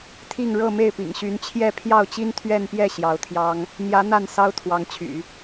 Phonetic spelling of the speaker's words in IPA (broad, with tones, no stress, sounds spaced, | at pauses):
t̪ʰ i˥˧ ŋ ɻ ɤ˥˧ m e˥˩ ɪ̯ p ḭ˨˩ ŋ ɕ y˧˥ n t͡ɕʰ j ɛ˥˧ pʰ j ɑ˥˩ ʊ̯ t͡ɕ i˥ n t̪ʰ ɥ ɛ˥˧ n p j ɛ˥˩ ɕ j ɑ˧˥ ʊ̯ t̪ʰ j ɑ˥ ŋ | n̪ j ä˧˥ n̪ a˥˩ n s ɑ˥ ʊ̯ t̪ʰ w ɑ˧˥ ŋ t͡ɕʰ y̰˨˩˦